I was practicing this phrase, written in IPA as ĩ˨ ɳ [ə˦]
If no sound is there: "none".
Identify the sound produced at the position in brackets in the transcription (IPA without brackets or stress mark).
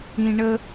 ə˦